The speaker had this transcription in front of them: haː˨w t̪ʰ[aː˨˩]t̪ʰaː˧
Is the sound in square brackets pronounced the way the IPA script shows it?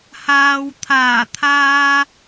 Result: yes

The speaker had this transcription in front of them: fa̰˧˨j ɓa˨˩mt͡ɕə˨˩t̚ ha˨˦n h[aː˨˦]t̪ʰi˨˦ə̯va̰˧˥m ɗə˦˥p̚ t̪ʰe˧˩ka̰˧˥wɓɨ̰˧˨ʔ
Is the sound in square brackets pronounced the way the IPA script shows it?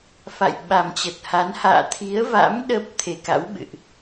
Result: no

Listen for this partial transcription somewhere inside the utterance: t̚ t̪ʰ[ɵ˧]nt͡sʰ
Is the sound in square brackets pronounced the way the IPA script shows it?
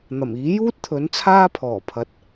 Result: no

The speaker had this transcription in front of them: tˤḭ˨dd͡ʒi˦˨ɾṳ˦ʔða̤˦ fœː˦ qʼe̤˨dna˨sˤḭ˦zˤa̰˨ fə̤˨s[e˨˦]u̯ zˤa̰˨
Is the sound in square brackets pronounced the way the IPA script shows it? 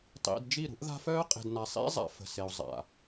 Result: no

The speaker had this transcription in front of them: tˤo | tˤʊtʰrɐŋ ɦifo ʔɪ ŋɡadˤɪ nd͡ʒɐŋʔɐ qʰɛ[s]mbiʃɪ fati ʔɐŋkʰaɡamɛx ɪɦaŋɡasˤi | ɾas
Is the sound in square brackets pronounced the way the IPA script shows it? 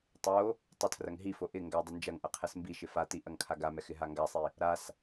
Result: yes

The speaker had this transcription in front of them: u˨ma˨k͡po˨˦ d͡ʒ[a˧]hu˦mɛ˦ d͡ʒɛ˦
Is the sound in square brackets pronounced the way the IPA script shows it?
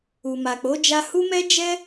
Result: yes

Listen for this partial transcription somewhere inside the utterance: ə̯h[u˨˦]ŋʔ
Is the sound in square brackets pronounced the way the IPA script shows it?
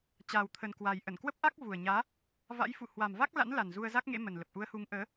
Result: yes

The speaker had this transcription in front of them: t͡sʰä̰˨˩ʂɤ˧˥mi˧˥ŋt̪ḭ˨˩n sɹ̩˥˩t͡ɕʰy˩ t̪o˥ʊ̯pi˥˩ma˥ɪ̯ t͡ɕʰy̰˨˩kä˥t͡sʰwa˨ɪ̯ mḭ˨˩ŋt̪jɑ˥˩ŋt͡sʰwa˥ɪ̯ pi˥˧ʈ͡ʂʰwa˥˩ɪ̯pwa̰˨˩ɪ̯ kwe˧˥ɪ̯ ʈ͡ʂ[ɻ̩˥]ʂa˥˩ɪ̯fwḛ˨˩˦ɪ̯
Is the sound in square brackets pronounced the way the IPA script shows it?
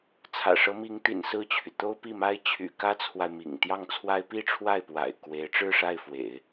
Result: no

